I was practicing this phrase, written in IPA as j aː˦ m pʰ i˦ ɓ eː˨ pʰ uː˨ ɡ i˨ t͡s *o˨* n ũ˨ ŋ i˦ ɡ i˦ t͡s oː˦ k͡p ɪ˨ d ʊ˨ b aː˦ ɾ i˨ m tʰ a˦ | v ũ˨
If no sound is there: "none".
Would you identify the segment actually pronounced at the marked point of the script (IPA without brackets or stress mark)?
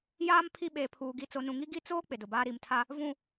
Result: o˨